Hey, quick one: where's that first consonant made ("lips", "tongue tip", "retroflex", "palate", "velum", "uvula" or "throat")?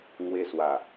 velum